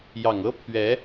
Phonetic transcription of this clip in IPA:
j ɑ˨˩ ŋ ɤ˥ pʰ ɥ ɛ˧˥

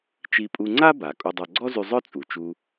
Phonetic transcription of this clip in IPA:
t͡ʃ i˧ pʼ u˧ ŋ͡ǀ a˥ b a˩ kʼ u˧ dˤ œ˧ ɡ͡ǀ ɔ˥ z y˧ zˤ œ˥ t͡sʼ u˩ t͡ʃ u˧

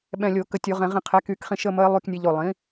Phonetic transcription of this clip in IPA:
ɓ ɛ̃˧˩ lʲ o˧˩˧ k ə˧˩ tʲ o˧˩˧ ʁ ɛ̃˧˩˧ ʁ ĩ˧˩ qʰ ɛ˩˥ k y˧˩˧ k χ ĩ˧ ʃ ə˧˥˧ m ə˧˥ ɪ̯ lˠ y˧˥˧ k nʲ ɛ˧ ʎ o˧˩ lˠ ĩ˩˥

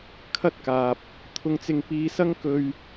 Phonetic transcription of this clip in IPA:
kʰ ɐ˥ t̚ k aː˨ p̚ | t̪ʰ ʊ˧ ŋ t͡s ɪ˧ ŋ p iː˧ s ɐ˥ ŋ k ɵ˧ ɥ

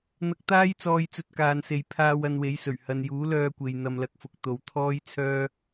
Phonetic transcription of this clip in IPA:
n̪ ɐ˧ k̚ t̪ aː˥ j t͡s ɔː˧ j t͡s ɵ˧ t̚ k aː˨ n s e˨ j pʰ aː˧ w ɐ˧ n w e˨˥ j s ɵ˨˩ ɥ h ɐ˨ n j uː˨˥ l œː˧ kʷ e˨ j n̪ ɐ˧ m l ɐ˧ k̚ f ʊ˨˥ k̚ t̪ o˨ w t̪ʰ ɔː˥ j t͡sʰ œː˥

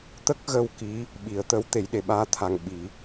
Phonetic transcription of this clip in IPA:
t̪ ə˦˥ k̚ ɣ ə˧ w k i˧˥ | ɓ i˨˩˦ ə̯ t̪ ə˧˥ w t̪ e˨˩˦ j ɗ e˨˩ ɓ aː˧˥ t̪ʰ a˧ ŋ ɓ i˨˩˦

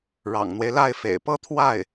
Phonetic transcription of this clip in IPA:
ɻ ɑ̰˨˩ ŋ n̪ w e˦ ɪ̯ l a˥˩ ɪ̯ f ḛ˨˩ ɪ̯ p ɤ˥ t̪ʰ w a˥˩ ɪ̯

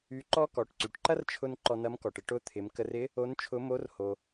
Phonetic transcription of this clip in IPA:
y˧˥ ǃ ɔ˥ k ɔ˩˧ ʈ ǀ y˩ ʈ ǃ ɐ˥ r t͡ʃʰ ʊ˧ n ǃ ɔ˧ n ɐ˧˥ m k ɔ˩ ʈ ɪ˧ ʈ ʊ˧˥ t̪ʰ ɪ˩˧ m k ə˧ r ɪ˧˥ | o˧˥ n t͡ʃʰ ʊ˧˥ m o˧˥ r h o˩

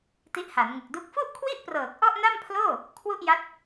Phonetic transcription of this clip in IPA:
t i˦˥ ʔ h a˩˦ n ŋ ɯ˨˩ k̚ d u˦˥ k̚ f u˥˩ ʔ kʰ w i˥˩ ʔ p r ɤː˨˩ k̚ ʔ ɔ˥˩ ʔ n a˥˩ m pʰ l oː˥˩ | kʰ w u˥˩ ʔ j a˦˥ t̚

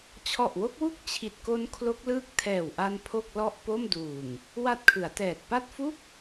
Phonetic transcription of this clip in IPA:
t͡ɕʰ ɔ˨˩ ʔ w o˦˥ k̚ w u˥˩ k̚ t͡ɕʰ i˨˩ t̚ k o˦˥ n kʰ l o˦˥ k̚ l ɯː˦˥ k̚ tʰ ɛː˨˩ w ʔ a˧ n pʰ o˥˩ k̚ l ɔ˥˩ ʔ p o˥˩ m d uː˨˩ ŋ | w a˦˥ t̚ kʰ ɯ˩˦ a̯ t ɛː˨˩ t̚ p a˥˩ t̚ f u˥˩ k̚

